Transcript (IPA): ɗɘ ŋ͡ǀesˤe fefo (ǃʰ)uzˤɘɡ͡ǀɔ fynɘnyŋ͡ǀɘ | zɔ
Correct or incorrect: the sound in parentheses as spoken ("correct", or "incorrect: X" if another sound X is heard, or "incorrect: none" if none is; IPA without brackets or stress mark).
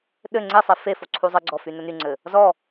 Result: incorrect: ǀʰ